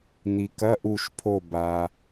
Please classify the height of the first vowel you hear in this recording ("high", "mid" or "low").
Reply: high